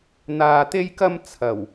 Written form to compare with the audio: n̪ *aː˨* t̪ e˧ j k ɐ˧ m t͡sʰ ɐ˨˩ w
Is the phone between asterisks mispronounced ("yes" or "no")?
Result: no